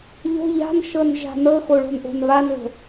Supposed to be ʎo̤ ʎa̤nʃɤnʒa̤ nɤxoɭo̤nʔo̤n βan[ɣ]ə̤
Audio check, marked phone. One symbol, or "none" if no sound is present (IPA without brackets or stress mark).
ɣ